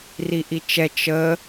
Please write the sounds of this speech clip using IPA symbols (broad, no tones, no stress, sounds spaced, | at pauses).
r i ʔ i t͡ʃ ɛ t͡ʃ ə